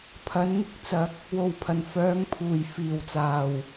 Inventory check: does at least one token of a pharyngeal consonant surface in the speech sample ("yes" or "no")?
no